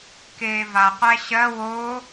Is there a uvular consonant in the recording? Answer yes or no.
yes